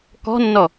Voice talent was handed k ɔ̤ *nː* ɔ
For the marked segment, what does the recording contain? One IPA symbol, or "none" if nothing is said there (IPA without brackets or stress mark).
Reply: nː